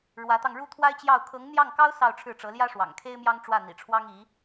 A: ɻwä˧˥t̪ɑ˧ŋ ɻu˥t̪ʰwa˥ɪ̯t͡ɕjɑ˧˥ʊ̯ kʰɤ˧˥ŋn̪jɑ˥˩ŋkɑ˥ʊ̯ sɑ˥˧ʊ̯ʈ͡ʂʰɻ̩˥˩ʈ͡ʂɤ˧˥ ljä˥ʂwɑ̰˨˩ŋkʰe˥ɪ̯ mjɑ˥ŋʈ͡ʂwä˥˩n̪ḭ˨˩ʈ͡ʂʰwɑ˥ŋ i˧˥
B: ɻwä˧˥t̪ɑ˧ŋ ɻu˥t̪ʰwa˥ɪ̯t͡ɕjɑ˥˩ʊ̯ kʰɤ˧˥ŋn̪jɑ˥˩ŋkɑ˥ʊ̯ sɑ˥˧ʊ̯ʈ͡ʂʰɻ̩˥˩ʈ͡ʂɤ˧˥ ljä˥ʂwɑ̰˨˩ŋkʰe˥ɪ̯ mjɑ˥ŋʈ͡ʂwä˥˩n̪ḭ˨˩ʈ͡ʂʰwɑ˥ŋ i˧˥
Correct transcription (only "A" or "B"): B